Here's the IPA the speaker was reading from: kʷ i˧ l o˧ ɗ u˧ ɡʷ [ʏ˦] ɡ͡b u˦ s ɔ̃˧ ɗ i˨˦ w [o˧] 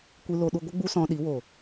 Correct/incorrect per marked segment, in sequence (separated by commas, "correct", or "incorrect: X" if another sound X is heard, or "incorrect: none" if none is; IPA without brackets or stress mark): incorrect: ə˦, incorrect: o˨